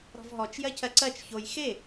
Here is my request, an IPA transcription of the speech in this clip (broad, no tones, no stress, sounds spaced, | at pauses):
ɾ ɔ̤ v ɦ ɔ t͡ʃ j ɜ cʰ ɜ ǀ ɜ t͡ʃ ç o j x e